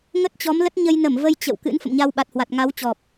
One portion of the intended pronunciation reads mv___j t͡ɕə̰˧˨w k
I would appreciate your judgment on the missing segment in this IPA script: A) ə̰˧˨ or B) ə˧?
B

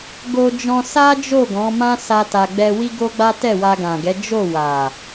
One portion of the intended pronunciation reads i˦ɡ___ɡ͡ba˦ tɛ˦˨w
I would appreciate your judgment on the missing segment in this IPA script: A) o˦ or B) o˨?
A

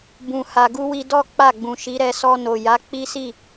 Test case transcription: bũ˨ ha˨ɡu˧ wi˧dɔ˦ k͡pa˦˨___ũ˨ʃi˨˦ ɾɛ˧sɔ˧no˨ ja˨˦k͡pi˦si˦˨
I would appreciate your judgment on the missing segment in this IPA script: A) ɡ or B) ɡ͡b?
B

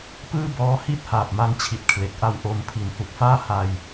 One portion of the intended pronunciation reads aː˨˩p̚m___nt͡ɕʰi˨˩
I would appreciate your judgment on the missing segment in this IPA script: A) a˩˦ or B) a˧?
B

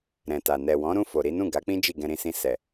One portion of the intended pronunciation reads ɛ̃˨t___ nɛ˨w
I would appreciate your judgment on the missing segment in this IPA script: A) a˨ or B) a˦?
A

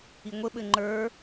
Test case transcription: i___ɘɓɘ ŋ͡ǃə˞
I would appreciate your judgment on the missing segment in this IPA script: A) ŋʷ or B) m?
A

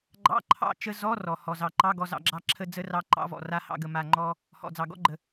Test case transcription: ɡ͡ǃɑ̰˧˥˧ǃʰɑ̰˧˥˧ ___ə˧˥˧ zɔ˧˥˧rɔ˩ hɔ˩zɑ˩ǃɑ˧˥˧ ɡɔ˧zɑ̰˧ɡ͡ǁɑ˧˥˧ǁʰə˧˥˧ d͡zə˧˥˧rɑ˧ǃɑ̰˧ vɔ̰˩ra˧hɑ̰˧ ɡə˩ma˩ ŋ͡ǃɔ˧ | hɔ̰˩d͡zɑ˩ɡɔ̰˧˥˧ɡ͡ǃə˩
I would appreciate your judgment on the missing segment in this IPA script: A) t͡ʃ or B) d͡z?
A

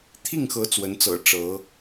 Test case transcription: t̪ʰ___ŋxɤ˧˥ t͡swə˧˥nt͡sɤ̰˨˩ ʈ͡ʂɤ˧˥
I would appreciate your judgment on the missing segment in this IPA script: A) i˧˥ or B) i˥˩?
B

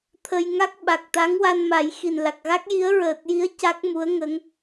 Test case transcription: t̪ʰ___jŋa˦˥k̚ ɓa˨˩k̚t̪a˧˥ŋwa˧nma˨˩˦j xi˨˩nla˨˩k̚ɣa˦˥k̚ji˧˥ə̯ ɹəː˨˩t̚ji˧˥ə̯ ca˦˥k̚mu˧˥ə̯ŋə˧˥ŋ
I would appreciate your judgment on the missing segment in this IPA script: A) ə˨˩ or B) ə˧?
B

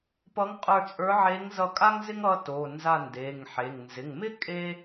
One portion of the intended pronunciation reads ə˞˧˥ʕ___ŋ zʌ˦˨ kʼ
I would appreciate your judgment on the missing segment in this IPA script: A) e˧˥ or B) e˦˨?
A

